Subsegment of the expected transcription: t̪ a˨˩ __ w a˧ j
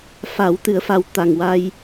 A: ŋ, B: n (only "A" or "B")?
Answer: A